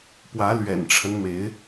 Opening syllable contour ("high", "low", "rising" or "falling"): rising